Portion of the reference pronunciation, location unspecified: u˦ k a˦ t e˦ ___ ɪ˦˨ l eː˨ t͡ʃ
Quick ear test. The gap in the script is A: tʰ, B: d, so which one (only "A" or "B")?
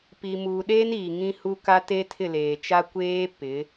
A